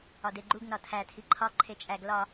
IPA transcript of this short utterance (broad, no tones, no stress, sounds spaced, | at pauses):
ɒ d e ɡ͡ǃ u ɡ n ɒ tʰ æ tʰ i ǃʰ ɒ ǃʰ e t͡ʃʼ æ ɡ l ɒ